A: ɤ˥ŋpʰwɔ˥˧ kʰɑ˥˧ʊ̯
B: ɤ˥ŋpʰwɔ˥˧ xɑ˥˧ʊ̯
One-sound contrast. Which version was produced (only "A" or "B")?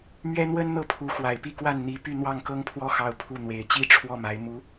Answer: B